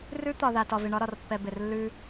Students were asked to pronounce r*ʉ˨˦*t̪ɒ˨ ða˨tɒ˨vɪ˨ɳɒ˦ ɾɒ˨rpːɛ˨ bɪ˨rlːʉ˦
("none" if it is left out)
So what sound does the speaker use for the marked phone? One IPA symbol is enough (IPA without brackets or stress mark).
ʉ˦